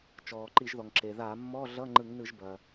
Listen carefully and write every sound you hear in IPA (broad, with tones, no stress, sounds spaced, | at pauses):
t͡ʃ ɔː˩ ǃ i˧˩˧ ʒ ð ɔ˩ ŋ ǁ e˩ ð a˧˩˧ mː ɔ˧˥˧ ɮ ʌ˧˥˧ ŋ͡ǃ ɯ˧˩˧ ŋ n ɯ˧˩˧ ʒ b ɐ˩